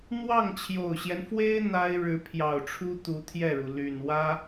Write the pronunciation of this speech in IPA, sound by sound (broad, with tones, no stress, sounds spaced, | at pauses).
n̪ w ɑ˥˩ ŋ t͡ɕʰ j o˨˩ ʊ̯ ɕ j ɛ˦ n f w e˥ ɪ̯ n̪ a˥ ɪ̯ ɻ ɻ̩˧˥ pʰ j ɑ˨˩ ʊ̯ ʈ͡ʂʰ u˥ t̪ u˧˥ t̪ʰ j ɛ˥˩ ɻ u˩ l y˨˩ n w ä˥